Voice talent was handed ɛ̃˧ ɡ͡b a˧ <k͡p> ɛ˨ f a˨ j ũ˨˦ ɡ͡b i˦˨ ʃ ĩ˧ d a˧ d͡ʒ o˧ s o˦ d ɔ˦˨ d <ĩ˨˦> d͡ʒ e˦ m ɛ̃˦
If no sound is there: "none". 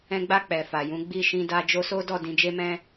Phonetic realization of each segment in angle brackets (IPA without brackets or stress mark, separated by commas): k͡p, ĩ˧